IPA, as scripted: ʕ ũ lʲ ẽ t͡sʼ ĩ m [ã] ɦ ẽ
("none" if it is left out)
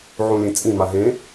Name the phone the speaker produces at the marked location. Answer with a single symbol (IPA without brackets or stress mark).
a